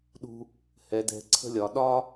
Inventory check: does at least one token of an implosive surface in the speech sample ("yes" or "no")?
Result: yes